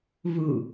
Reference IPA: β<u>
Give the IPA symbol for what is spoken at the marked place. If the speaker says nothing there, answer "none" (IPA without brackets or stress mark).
u